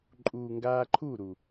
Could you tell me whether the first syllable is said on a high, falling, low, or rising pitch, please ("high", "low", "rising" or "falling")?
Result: low